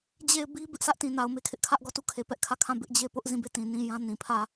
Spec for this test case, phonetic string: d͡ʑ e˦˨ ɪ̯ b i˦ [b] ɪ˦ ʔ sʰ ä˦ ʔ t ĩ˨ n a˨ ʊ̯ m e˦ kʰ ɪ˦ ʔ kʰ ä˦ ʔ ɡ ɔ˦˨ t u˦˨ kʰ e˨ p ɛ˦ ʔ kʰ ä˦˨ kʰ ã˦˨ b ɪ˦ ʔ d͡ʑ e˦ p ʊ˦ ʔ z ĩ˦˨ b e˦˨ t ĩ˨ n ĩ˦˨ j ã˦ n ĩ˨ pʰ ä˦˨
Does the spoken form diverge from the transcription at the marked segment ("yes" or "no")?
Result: no